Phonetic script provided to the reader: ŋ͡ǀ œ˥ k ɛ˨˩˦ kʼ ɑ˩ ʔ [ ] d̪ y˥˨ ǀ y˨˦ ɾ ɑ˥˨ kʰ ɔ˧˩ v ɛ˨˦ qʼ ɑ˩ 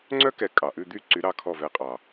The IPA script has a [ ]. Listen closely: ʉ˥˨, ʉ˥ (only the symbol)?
ʉ˥˨